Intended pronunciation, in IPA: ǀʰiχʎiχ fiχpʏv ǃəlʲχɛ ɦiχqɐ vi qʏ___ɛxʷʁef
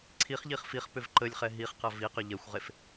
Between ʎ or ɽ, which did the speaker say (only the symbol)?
ʎ